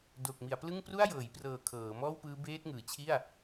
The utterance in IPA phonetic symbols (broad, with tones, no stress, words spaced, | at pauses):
do˨˩k̚mi˩˦a̯plɯ˥˩ŋ pru˥˩a̯jɤː˩˦jprɤː˨˩ kʰɤː˩˦mɔː˥˩wpɯː˦˥ beː˦˥t̚ŋɯː˩˦t͡ɕʰi˥˩a̯